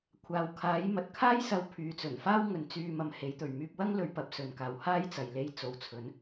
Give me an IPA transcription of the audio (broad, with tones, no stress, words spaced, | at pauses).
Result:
kʷʰaː˨wkʰaː˨˥j mɐ˨t̚kʰaː˥j sɐ˧w pʰyː˨t͡sɵ˨˩nfaː˥w ŋɵ˨˧nt͡syː˧ mɐ˧mhe˨˥jt̪ɵ˨ɥ myː˧p̚wɐ˥ŋlɵ˨˧ɥ pɐ˨p̚ sɵ˧nkaː˧w haː˥jt͡sɐ˨j le˧jt͡so˨wt͡sʰɵ˨˥n